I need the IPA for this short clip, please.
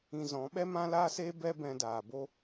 ĩ˧ z ɔ̃˨˦ ɓ ɛ˦ m ã˦ l aː˦ s eː˦ b ɛ˦ b ɛ̃˧ d aː˨ b o˦

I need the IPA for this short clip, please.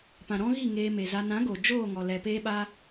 p ã˨ ɾ ɔ̃˦ ɣ i˦˨ ŋ eː˧ m e˨ z a˧ n ã˨˦ ɡ o˨ d͡ʒ oː˦˨ ŋ ɔ˨ l ɛ˨ p eː˦ ɓ a˦

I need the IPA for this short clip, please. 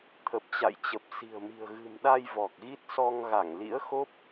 t̪ʰ ə˨˩ p̚ t͡ɕ a̰˧˨ j t͡ɕ ə˨˩ p̚ s i̤˨˩ ə̯ m i̤˨˩ ə̯ ɣ ɨ̤˨˩ m ɗ a˧ j v ɔ˨˩ k̚ ɣ i˦˥ t̚ s ɔ˧ ŋ ɣ a˧˩ ŋ l ḭ˧˥ ə̯ x o˦˥ p̚

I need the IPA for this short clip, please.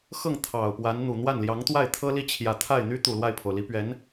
x ɤ˥˩ ŋ t̪ʰ ɑ˨˩ ʊ̯ p w a˧˥ n n̪ u˨˩ n̪ w a˥˩ n l j ɑ˧˥ ŋ t̪ w a˥˩ ɪ̯ t̪ʰ ɤ˥ l i˥˩ t͡ɕʰ j ä˨˩ t̪ʰ a˥˩ ɪ̯ n̪ y˥ t̪ u˨˩ l w a˥˩ ɪ̯ pʰ o˩ ʊ̯ l i˧˥ p ɥ ɛ˧˥ n

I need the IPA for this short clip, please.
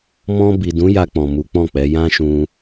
m ɔ̃˧ b i˨ d ũ˨˦ j a˧ k͡p ɔ̃˨ m u˨˦ k͡p ɔ̃˦˨ k͡p ɛ˨˦ j ã˦ ʃ ũ˧

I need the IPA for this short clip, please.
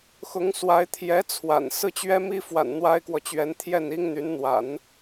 x ʊ˧˥ ŋ s w a˧˥ ɪ̯ t̪ʰ j ɛ˧˥ t͡sʰ w a̰˨˩ n s ɹ̩˥˩ t͡ɕ ɥ ɛ˥ m i˥ f w a̰˨˩ n n̪ w a˥ ɪ̯ k w ɔ˨ t͡ɕ ɥ ɛ˧˥ n t̪ʰ j ɛ˥˩ n i˥ ŋ n̪ y˧˥ n n̪ w a̰˨˩˦ n

